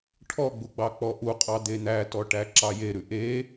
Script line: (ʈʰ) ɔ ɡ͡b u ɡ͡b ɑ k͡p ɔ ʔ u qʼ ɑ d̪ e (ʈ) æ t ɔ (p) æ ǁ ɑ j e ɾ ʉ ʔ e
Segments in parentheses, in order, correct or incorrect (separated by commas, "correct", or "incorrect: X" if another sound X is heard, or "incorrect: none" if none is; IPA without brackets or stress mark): correct, incorrect: n̪, incorrect: ʈ